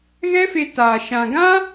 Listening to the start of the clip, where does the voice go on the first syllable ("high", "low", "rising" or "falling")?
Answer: high